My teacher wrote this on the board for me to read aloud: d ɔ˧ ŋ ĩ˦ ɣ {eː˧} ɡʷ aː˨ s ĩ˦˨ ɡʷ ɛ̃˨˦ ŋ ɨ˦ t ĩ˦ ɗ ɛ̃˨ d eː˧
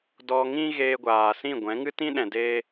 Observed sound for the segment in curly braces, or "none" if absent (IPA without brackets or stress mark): eː˧